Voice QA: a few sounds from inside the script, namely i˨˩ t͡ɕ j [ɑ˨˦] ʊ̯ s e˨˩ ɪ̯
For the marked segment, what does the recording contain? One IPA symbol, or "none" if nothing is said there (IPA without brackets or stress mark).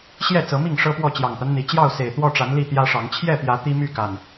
ɑ˥˨